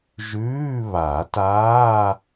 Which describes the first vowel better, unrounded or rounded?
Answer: rounded